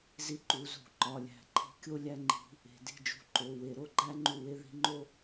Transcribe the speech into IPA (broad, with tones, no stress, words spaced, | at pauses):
zi˧˥ǃu˩˧˩zṳ˧˩˧ ǃɒ˩˧˩lʲæ̤˧˩˧ǃʰi̤˦˨kʲo˥ lʲæ˥ŋ͡ǃi̤˧˥ | e̤˧˩˧di̤˦˨d͡ʒṳ˧˥ ǃo˩˧˩we˧˩˧ ɾo˦˨ɡ͡ǃæ˥ ŋ͡ǃu˦˨we˥ ði̤˧˥ŋ͡ǃo˥